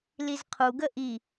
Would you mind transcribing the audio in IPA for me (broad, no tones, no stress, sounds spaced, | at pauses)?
l i z qʰ u ɡ ə ʔ i